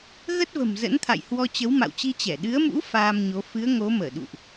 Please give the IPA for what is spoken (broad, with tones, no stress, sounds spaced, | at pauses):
ɣ ə˦˥ t̚ v ə̤˨˩ m z ə̰˧˥ n t̪ʰ a̰˧˨ j h w ɔ˧ t͡ɕ ə˨˦ w m a̰˧˨ w t͡ɕ i˧ t͡ɕ ɛ˧˩ ɗ ɨ˨˦ ə̯ m ṵ˧˥ f aː˧ m ɲ o˨˦ f ɨ˨˦ ə̯ ŋ o˨˦ m əː˧˩ ɗ ṵ˧˨ ʔ